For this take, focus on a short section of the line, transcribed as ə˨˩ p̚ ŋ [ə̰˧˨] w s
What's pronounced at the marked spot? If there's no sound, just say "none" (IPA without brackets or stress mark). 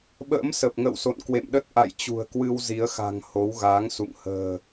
ə̰˧˨